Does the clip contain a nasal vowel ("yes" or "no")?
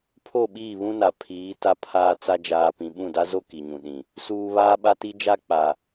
yes